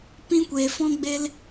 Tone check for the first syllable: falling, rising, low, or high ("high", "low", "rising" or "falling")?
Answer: high